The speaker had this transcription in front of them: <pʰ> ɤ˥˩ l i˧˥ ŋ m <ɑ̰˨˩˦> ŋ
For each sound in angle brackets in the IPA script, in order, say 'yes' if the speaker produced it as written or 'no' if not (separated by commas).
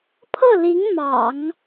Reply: yes, yes